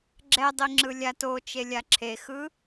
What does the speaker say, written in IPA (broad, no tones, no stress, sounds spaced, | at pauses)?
ɡ͡ǁ ɛ dˤ i ŋ͡ǁ ɯ lʲ a t o t͡ʃ e lʲ a ǁʰ e x ɯ